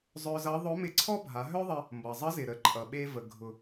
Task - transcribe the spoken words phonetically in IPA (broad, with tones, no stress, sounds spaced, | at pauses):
zˤ œ˧ z ʌ˧˥ ðˤ ʊ˧˥ m ɪ˧ ǀʰ ɔ˥ bʱ a˩˧ ɦ œ˥ ðˤ ə˧ | m b ʌ˩ zˤ ə˧˥ z ɪ˩ ɾ ə˩˧ ǃʼ ʌ˩ ɓ e˧ v ə˩ ɡʱ ʊ˩